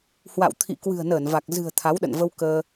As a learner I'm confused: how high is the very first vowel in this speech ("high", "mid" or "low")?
low